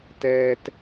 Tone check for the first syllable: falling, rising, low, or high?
high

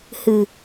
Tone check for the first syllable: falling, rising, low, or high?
low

